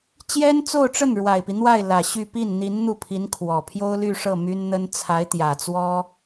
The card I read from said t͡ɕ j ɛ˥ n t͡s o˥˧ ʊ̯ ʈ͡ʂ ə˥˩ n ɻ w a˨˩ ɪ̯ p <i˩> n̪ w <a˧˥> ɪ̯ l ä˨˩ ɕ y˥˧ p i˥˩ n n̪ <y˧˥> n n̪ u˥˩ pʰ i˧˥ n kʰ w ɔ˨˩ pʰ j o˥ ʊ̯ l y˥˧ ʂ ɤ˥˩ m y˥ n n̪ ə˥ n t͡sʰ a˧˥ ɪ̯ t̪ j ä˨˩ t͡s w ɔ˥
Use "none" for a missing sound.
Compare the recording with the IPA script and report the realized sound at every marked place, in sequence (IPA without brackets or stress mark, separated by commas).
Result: i˦, a˥˩, i˧˥